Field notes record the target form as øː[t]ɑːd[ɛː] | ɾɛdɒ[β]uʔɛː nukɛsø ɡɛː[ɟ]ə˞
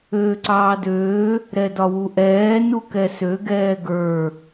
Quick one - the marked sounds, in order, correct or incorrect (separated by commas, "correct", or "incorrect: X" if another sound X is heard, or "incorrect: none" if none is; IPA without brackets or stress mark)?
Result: incorrect: ǀ, incorrect: øː, incorrect: w, incorrect: ɡ